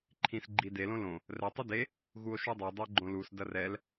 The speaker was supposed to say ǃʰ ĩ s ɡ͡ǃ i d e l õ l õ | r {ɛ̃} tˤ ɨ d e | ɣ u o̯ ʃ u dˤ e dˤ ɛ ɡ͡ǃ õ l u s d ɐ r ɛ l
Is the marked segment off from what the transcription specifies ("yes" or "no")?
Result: yes